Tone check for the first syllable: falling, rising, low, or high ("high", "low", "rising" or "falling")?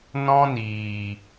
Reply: high